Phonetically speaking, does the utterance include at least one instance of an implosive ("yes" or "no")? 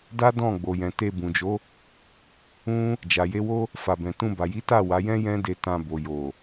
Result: no